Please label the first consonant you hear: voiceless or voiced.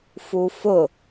voiceless